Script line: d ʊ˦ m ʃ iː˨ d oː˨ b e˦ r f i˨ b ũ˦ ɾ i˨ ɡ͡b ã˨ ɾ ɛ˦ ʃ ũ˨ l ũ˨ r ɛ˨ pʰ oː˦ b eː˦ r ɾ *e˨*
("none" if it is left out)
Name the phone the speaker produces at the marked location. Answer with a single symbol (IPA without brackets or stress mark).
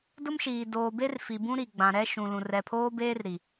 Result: i˨